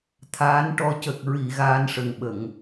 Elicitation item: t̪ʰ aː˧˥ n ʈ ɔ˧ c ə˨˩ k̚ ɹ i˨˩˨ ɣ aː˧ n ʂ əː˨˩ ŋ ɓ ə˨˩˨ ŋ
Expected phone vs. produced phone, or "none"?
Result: əː˨˩ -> ə˨˩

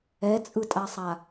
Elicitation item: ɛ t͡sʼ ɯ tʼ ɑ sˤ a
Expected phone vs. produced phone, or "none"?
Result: ɑ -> a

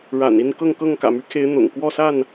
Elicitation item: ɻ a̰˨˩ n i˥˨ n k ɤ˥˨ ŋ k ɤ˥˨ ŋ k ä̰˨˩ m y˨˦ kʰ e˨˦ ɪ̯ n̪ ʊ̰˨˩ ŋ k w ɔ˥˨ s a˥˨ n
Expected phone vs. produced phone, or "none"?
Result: none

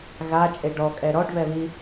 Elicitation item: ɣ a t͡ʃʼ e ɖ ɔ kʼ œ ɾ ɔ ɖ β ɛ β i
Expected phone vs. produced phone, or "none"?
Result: œ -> ɛ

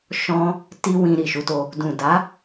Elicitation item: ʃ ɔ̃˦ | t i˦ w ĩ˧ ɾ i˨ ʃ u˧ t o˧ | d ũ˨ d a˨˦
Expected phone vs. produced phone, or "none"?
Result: none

